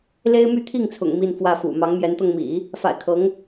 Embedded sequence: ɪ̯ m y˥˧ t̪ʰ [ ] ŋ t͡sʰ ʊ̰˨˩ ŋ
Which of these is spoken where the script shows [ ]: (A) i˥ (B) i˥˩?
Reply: B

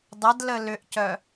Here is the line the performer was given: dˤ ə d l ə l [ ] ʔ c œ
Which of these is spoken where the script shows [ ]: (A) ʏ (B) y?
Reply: A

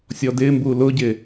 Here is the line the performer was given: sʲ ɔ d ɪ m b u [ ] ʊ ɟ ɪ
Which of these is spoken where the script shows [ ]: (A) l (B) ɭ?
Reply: A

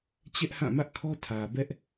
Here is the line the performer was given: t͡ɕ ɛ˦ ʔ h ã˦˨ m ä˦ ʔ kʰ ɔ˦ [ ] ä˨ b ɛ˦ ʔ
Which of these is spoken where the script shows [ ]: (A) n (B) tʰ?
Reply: B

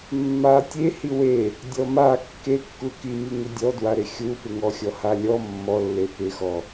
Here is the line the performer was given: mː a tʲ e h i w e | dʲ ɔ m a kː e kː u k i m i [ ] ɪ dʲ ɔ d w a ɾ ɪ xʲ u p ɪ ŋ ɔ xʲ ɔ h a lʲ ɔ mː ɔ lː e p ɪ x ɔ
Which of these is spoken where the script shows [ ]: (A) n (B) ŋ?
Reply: B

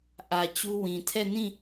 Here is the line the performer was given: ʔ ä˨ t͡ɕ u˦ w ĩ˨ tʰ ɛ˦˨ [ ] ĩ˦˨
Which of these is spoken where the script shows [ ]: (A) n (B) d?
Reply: A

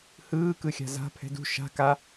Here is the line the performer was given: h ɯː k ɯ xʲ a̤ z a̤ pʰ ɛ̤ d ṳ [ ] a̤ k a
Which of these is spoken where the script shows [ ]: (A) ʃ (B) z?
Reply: A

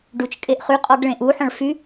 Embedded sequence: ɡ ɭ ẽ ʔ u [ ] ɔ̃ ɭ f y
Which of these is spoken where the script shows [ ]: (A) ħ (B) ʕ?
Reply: A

